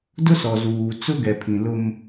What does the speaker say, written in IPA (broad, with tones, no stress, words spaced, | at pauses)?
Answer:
dʊ˦sɔ˨zuː˨ t͡sʊ˦ɡɛ˨pʰĩ˨lʊ˦m